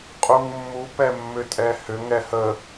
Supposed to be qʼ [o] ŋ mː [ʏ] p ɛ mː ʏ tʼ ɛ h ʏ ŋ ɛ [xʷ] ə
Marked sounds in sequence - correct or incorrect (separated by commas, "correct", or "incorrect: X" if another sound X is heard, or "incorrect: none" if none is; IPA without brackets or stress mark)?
incorrect: u, incorrect: u, incorrect: h